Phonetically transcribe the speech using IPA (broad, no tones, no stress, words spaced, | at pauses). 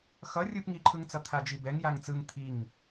xʌ rʲɯpŋiǃʰɯŋt͡sʌ t̪ʰad͡ʒibɛŋ jaŋt͡sɯŋ t̪ʰiŋ